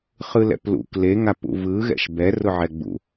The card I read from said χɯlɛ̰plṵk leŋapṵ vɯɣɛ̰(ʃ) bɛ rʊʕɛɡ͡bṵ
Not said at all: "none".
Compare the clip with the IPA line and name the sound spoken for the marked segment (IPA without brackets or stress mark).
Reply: ʃ